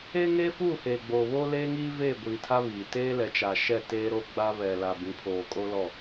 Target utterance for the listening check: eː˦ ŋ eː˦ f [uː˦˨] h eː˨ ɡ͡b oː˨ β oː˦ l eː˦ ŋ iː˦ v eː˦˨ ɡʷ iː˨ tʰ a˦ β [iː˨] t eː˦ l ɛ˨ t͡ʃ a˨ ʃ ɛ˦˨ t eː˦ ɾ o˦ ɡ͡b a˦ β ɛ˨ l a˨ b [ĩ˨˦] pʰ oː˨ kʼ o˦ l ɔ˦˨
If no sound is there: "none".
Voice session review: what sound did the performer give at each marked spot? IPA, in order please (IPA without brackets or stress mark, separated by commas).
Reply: uː˦˨, iː˨, ĩ˨˦